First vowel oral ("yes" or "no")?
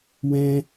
no